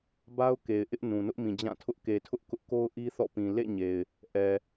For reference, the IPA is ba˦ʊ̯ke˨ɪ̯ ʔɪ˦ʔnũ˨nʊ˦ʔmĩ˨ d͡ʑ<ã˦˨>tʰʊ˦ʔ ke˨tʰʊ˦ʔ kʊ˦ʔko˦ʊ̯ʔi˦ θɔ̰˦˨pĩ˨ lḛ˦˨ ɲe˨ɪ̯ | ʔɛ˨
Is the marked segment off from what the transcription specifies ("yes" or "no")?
no